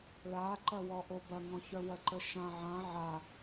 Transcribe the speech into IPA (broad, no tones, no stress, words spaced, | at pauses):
ɭaǃɐwɔ ʔobɐŋɔ̃çœ wɐǃəʃã ʕã ʕa